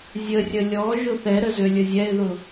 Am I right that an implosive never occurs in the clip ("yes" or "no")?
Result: yes